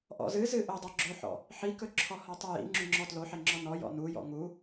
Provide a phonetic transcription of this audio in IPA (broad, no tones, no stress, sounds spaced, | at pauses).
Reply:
ʔ ɔ̰ z ɨ z ɨ ʔ ɵ dˤ ɵ ɡ͡ǁ ɵ ħ ɔ̰ | ħ i k ɵ ǁʰ ɔ h ɔ tˤ u j ḭ ŋ͡ǁ ũ ŋ͡ǁ ɔ t l o ħ e ŋ͡ǁ ɔ n ɔ j ɔ̰ n u j ɔ̰ ŋ u